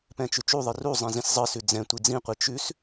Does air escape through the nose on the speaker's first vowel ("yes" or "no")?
yes